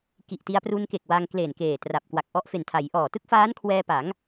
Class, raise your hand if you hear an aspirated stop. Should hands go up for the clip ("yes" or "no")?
yes